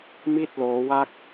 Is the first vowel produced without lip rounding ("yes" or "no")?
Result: yes